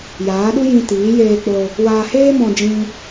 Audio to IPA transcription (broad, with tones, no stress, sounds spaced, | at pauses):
j aː˨˦ ɗ u˦ j ĩ˧ t iː˨˦ j eː˧ k͡p o˧ | w aː˧ h eː˦ m ɔ̃˧ d͡ʒ ĩ˧